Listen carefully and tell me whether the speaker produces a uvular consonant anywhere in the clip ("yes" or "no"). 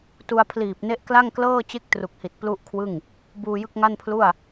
no